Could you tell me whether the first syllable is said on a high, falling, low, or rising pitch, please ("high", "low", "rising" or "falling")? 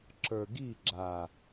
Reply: low